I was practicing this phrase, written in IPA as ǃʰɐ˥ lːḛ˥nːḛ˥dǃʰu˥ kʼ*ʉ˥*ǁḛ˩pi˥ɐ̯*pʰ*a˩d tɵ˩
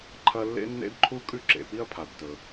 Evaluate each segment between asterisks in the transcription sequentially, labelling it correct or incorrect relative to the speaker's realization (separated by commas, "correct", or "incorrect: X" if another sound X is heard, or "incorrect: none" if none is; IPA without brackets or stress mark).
correct, correct